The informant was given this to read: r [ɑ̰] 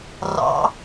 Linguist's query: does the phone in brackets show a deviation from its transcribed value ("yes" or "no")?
no